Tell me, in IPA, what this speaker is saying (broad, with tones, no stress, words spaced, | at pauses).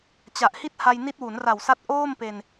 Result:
t͡ɕa˨˩ʔhi˥˩t̚ ha˧jni˦˥t̚ wu˩˦n ra˨˩wsa˦˥t̚ ʔoː˥˩mpe˧n